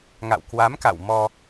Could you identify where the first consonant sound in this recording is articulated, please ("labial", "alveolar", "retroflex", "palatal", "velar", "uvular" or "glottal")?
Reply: velar